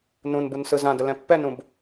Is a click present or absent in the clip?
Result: absent